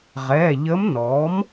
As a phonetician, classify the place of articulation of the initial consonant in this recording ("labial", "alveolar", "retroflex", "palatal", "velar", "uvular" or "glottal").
uvular